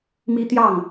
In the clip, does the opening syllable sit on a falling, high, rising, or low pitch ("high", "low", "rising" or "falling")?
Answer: high